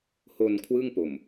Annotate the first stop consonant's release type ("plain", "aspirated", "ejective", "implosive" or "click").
aspirated